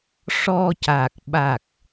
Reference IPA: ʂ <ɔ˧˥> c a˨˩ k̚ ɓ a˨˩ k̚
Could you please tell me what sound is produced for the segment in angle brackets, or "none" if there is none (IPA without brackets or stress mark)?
ɔ˧